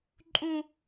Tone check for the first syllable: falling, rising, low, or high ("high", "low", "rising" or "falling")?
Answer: high